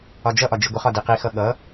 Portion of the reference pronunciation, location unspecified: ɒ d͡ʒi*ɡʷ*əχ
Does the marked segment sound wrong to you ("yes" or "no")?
no